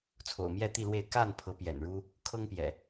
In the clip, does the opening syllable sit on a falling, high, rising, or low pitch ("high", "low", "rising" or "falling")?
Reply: low